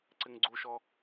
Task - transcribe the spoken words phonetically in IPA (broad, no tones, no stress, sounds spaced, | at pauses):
ǀ ɪ ŋ ɡ͡ǀ u ʃ ɔ